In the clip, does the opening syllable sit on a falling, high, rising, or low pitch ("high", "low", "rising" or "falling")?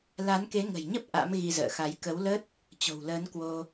rising